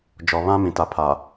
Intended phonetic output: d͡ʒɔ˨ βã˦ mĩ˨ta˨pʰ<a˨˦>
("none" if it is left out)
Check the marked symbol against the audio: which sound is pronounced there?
a˨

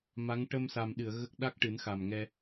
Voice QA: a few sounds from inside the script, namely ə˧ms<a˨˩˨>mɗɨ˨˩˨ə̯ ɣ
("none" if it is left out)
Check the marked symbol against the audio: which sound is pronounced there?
a˨˩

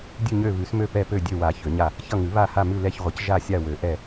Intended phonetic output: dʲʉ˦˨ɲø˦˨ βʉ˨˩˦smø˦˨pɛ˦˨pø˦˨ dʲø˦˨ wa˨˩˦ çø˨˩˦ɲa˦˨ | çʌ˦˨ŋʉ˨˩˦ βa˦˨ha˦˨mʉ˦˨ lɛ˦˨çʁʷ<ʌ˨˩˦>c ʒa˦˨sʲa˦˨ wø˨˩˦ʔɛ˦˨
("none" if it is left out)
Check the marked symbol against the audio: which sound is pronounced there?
ə˨˩˦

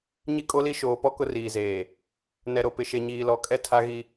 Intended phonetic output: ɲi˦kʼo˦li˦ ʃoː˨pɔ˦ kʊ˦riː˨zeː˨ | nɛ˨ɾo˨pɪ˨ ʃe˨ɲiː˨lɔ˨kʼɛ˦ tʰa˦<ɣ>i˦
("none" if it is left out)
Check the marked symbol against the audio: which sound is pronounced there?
ɣ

